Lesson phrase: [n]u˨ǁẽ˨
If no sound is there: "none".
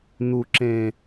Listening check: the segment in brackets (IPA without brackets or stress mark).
n